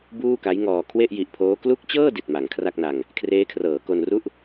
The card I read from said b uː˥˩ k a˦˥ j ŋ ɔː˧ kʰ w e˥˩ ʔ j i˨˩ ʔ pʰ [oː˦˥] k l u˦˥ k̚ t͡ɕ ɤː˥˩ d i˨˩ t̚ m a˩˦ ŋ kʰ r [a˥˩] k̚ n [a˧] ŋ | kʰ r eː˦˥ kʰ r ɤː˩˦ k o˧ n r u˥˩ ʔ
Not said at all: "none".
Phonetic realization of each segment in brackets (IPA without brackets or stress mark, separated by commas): oː˦˥, a˥˩, a˧